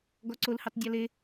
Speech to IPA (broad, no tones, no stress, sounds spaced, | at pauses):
ɡ ɔ ǀ o l h ʉ tˤ dʲ ɔ l e